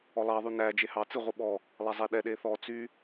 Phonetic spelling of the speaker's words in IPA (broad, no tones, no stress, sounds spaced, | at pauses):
ɔ lˠ ɑ ðˤ y n æ d͡ʒ e h ɑ t͡s ɨ ʁʷ ɨ ɓ ɔ | lˠ æ zˤ ɛ ɗ ɛ ɗ e θ ɔ t͡s y